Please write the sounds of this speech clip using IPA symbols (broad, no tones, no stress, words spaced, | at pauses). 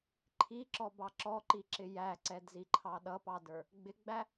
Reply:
ǃʰiǁɔbɑ ǁɔǃiǁɪ jæǀɛdziǃʰɑ ɗʌpɑdə˞ | ɡ͡bɪɡ͡bæ